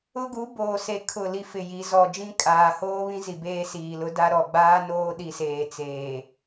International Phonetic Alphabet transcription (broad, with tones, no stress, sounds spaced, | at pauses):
ʊ˦ ɡ u˨˦ b oː˨ s e˨ kʰ ʊ˦˨ l i˦ f ɪ˨ j i˨˦ z ɔ˨ d͡ʒ ĩ˦ kʼ aː˨ h oː˦ β ĩ˦ z i˨ b eː˦ s iː˨ l ʊ˦ d a˦ ɾ ɔ˨ ɡ͡b aː˦ n oː˦ ɗ i˨ s eː˨ t͡s eː˨